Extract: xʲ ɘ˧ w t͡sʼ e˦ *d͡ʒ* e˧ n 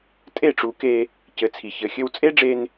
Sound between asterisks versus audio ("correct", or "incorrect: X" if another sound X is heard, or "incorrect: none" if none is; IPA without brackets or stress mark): incorrect: ɖ͡ʐ